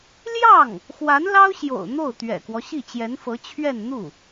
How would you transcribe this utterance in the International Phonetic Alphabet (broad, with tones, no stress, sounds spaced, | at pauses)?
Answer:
l j ɑ˥˩ ŋ | x w a˧˥ n l ɑ˥ ʊ̯ ɕ j o̰˨˩ ʊ̯ n̪ o˥˩ ʊ̯ t̪ ɥ ɛ̰˨˩ k w ɔ˦ ɕ i˥˩ t͡ɕ j ɛ˧˥ n f ɤ˧˥ t͡ɕʰ ɥ ɛ˥˧ n n̪ u˥˩